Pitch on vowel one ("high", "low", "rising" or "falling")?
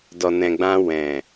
low